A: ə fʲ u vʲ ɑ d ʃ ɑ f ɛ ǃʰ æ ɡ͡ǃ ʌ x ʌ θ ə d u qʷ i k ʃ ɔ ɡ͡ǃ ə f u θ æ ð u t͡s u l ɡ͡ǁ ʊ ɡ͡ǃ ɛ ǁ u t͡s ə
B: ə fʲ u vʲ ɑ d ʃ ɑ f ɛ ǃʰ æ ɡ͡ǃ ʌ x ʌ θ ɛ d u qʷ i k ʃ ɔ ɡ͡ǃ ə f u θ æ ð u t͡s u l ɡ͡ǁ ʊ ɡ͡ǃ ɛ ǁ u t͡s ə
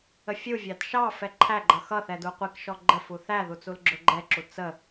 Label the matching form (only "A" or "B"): B